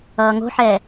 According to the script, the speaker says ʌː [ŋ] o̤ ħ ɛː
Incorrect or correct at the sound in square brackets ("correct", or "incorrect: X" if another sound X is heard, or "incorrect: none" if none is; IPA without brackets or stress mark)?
correct